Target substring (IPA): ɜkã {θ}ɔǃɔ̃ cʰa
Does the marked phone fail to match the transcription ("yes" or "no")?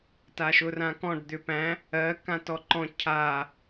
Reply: yes